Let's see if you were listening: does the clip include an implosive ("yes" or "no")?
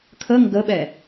yes